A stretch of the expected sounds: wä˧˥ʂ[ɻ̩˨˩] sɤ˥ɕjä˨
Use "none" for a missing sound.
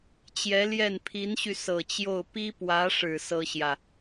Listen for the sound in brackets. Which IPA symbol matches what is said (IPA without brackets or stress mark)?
ɻ̩˨˩